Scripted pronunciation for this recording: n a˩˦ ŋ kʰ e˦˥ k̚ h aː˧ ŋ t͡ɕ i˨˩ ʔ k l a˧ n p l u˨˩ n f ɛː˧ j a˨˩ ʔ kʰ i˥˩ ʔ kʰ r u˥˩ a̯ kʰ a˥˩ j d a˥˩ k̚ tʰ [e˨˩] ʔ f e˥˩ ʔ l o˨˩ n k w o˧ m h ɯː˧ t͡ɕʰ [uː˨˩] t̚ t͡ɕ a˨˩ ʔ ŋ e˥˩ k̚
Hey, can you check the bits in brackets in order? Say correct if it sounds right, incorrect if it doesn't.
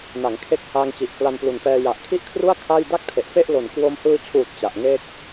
correct, correct

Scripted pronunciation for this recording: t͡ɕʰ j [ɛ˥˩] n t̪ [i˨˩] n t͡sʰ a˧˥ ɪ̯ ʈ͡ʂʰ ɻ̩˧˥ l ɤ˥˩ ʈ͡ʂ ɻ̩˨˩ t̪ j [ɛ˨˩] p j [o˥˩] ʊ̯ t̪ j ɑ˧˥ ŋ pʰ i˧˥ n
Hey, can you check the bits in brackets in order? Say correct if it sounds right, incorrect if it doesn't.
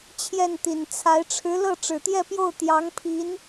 correct, correct, incorrect, correct

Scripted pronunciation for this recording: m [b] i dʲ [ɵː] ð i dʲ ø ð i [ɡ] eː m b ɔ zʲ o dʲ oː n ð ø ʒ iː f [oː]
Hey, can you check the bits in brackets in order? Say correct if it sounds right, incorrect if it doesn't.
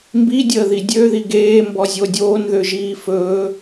correct, incorrect, correct, incorrect

